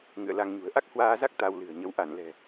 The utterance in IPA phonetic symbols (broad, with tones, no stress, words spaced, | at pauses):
ŋɨ̰˧˨ə̯la˧ŋɲṳ˨˩ə̯ ʔa˦˥k̚hwaː˧za˦˥k̚ t̪a˧wlɨ̤˨˩ə̯ɲə˨˦w ʔa˧˩nlɛ̤˨˩